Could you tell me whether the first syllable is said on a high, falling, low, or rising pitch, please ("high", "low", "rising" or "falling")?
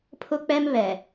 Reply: high